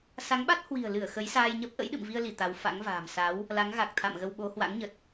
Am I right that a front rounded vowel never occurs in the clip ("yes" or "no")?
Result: yes